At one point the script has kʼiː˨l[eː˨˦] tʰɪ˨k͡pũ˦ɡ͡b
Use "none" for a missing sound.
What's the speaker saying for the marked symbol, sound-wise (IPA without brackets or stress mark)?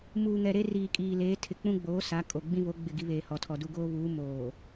eː˨˦